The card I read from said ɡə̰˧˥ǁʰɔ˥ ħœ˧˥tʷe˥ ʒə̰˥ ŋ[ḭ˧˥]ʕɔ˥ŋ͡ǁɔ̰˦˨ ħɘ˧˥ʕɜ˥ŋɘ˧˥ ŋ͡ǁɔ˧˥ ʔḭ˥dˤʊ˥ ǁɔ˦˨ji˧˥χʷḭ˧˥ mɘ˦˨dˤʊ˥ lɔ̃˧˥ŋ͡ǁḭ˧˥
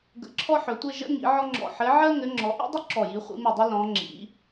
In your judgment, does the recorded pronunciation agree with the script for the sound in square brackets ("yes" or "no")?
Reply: yes